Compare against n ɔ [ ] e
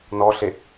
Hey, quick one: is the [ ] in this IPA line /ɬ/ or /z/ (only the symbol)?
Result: ɬ